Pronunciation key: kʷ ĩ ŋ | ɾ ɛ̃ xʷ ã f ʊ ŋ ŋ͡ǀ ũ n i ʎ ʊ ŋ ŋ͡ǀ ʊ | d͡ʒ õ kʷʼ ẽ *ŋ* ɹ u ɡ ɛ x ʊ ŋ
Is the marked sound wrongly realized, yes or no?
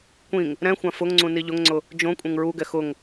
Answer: no